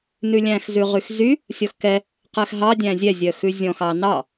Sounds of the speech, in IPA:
nʉlʲæ̃x zʉʁyxzy | sʲɔxkɛ | qɛxɦɑ dʲæ̃zʲɛzʲœ xʉzʲɔ̃xɑ nɑ

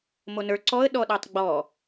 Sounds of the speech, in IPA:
monə˞ ǀɔə̯ ɗɔɗɔtˤɡ͡bɔ

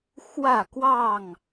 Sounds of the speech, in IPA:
xwä˥˨ kwɑ˥˨ŋ

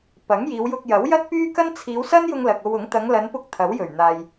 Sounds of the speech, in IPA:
pɐ˨˥ŋjiː˨˧wjʊ˧k̚ jɐ˨˥wjɐ˥t̚pyː˥kɐ˥n t͡sʰiː˨˧wsɐ˥njʊ˧ŋ lɐ˨k̚o˧wʊ˨˥ŋ t̪ɐ˨˧ŋlɐ˨˧npʊ˧k̚ t̪ʰɐ˨˥wjɵ˨˩ɥn̪aː˨j

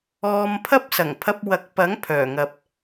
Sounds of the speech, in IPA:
ɔː˧mpʰɐ˥p̚ sɐ˨˩ŋpʰɐ˧p̚wɐ˨˥k̚pɐ˨˥ŋ pʰœː˨˩ŋɐ˨p̚

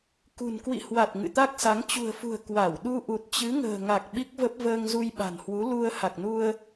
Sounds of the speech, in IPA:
kṳ˨˩n kwḭ˧˨hwa˨˩t̚ ŋɨ̰˧˨t̪a˦˥k̚sa˨˦ŋ t͡ɕṳ˨˩ə̯fṳ˨˩ə̯ kwa˧˩wɗu˧ ʔu˨˩t̚t͡ɕɨ˨˦ŋə̤ː˨˩ŋa˨˩k̚ ɓi˦˥k̚və˦˥p̚ vəː˧ŋzu˧jɓa̤˨˩nhwu˨˦ lu˧ə̯ ha˨˩k̚nu˧ə̯

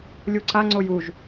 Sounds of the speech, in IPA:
lʲuǀaŋ͡ǀoj uʒ

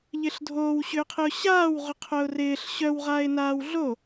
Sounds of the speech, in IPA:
ʎɪːɬdʱoːw ɕʏːqʰɪʊ̯ɕaːwʁʏ qʰœʊ̯rɪːɬ ɕœwʁaːɪ̯naːw ɮo

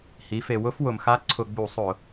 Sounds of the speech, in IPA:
hi˩˧fe˩ wʊ˦fwʊ˩mxa˦ ǀʰʊ˧˩˧ɡ͡bu˧˩˧sˤʊ˧˩˧

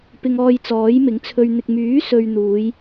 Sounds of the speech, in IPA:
pɪ˧ŋɔː˧jt͡sɔː˨˥jmɪ˨˥ŋ t͡sʰɵ˧ɥn̪ɪ˧k̚ myː˨˥sɵ˨ɥ n̪uː˨˧j

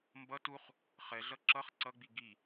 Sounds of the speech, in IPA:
mbʌ tuχ | χɛɮʌ ǁʌχ ǀʌɡ͡bi ɡi

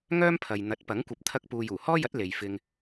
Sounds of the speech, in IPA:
ŋœː˥mpʰɐ˨j n̪ɐ˨˥t̚pɐ˨˥ŋkʷɐ˨˥p̚ t̪ʰɐ˧k̚ puː˨juː˨˩hɔː˥jɐ˨˥t̚ le˨jfɪ˧ŋ

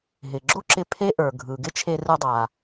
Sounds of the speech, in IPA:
ɦɪ˩ɡ͡ǁo˥ǁɪ˧ pʰe˥ ʔə˞˩ɡʱɯ˩ɡɪ˥t͡ʃʰe˧ rɯ˧dˤa˩

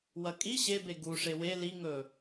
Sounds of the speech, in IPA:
wɐkʼi ɕebe ɡu ʂewe liŋɵ

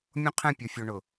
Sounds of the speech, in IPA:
mʲõ˦qʰɛ̃˦˨pʲo˨fʲo˨ ɳʊ˨

